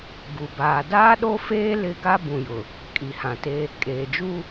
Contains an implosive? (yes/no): yes